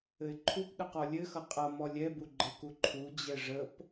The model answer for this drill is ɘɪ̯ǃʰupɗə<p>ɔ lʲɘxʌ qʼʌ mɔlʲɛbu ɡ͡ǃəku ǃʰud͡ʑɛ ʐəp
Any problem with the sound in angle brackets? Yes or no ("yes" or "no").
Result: yes